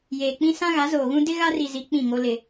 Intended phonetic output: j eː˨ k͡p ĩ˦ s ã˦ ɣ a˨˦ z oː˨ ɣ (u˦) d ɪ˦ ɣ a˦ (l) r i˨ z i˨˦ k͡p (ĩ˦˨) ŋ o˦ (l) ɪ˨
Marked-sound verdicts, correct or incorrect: incorrect, incorrect, correct, correct

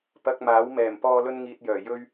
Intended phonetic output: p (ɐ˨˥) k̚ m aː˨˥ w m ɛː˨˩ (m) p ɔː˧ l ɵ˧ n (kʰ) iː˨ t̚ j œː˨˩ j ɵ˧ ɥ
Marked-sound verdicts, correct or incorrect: incorrect, correct, incorrect

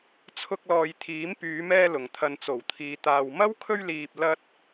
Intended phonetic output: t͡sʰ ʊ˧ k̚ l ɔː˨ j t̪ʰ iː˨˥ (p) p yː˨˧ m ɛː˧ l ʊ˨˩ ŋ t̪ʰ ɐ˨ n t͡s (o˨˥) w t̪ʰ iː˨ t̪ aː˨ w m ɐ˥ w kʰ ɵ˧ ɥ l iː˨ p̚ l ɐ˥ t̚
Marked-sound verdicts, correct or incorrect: incorrect, incorrect

